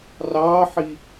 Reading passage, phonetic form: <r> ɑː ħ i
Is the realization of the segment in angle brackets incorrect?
no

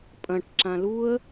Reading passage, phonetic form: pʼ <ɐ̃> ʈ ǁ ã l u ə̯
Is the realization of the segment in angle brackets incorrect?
no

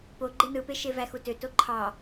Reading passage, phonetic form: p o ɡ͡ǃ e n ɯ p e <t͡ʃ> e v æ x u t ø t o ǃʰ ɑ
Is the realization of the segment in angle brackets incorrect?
yes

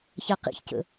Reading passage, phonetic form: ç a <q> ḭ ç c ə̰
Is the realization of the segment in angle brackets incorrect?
no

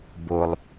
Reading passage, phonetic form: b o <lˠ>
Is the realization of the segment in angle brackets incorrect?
no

